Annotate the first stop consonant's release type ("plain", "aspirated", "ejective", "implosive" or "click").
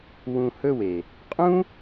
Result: ejective